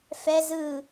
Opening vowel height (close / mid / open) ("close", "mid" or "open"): mid